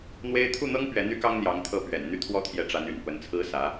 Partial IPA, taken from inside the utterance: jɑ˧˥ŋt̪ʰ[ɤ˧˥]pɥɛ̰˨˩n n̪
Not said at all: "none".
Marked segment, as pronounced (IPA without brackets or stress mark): ɤ˥˩